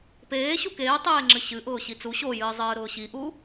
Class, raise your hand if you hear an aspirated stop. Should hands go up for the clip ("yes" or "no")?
no